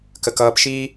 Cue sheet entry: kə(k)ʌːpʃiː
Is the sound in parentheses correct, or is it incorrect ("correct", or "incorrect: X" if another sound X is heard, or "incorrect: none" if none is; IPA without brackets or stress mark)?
correct